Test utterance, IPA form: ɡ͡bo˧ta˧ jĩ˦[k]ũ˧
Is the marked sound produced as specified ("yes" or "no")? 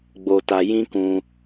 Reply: yes